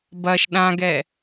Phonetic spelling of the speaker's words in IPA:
b ɐ ʃ ɗ ã ɡ ɛ

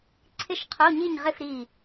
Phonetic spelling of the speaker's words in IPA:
ǀʰ ɪ˥˨ ʃ qʰ o˧˥˧ ɲ i˥˨ ɲ ʁ ɪ˥˨ f ɾ i˧˩

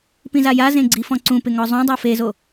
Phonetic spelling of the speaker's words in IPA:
p ĩ z a j a z ẽ ɡ͡ǀ i f ɔ̃ ǀ ũ p ɪ ŋ ɔ zˤ õ dˤ o f e z o

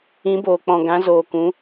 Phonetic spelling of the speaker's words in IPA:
ĩ˨˦ b oː˨ k͡p ɔ̃˨ ɡ ã˨˦ z oː˨ k ũ˨˦

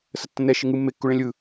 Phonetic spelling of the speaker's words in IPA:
s ə tː ə̃ n ɛ ʃ ɪ ŋ ɯ mː e kː u ɭ ẽ lʲ ɯ

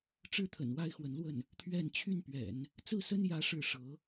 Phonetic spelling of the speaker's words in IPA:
ʈ͡ʂ ɻ̩˥ t̪ʰ ə̰˨˩ n w a˥ ɪ̯ x w ə˧˥ n l w ə˥˩ n | t̪ʰ ɥ ɛ˥˧ n t͡ɕʰ y˥˩ n p ɥ ɛ̰˨˩˦ n | t͡s ɹ̩˥˩ s ə˥ n j ä˥ ʂ ɻ̩˥˩ ʂ ɤ˧˥

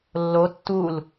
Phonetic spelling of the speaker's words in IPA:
lː o tː u l

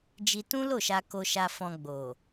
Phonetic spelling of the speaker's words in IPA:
d͡ʒ i˧ t ũ˦ l o˦˨ ʃ a˧ k o˧ ʃ a˧ f ɔ̃˧ ɡ͡b o˨

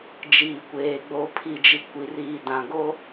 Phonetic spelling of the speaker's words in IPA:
d͡ʒ iː˨ kʷ eː˨ ɡ͡b o˨ pʰ i˨ d͡ʒ i˨ kʷ i˨ r iː˨ d ã˨ ɡ o˦

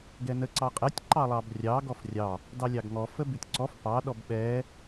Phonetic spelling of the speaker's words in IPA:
ɡ ɛ n ə ǀ ɑ qʼ ɛ tʲ ǃ ɑ lˠ ɑ b rʲ ɑ ɡ ɔ f rʲ ɑ | d ɑ lʲ ɑ ɡ ŋ ɔ f ə b ʉ tʲ ǀ ɔ f p ɑ ɗ ɔ b ɓ ɛ

